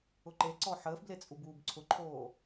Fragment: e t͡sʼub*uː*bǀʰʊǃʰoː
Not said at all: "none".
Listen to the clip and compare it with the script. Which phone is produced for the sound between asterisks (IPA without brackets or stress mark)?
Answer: uː